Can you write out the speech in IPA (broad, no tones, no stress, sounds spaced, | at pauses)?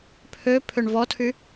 pʰ ø pʰ ø ɳ v ɔ tʰ y